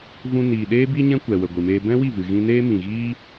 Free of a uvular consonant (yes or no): yes